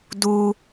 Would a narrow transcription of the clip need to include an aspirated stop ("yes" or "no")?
no